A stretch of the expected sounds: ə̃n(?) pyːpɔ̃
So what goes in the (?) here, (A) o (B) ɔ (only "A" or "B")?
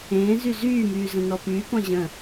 B